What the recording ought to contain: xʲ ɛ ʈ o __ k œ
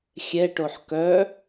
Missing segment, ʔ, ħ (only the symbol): ħ